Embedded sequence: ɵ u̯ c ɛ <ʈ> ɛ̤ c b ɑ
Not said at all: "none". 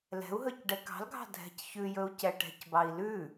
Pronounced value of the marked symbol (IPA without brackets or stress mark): ʈ